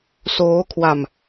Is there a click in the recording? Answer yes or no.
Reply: no